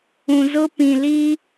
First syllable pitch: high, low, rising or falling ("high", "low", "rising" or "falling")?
low